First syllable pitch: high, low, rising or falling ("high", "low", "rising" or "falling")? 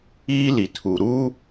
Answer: high